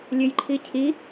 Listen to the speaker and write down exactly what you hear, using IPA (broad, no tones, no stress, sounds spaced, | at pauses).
lʲ ø j ǃʰ i cʰ i